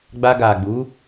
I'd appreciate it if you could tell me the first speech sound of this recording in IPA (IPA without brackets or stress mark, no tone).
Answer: ɡ͡b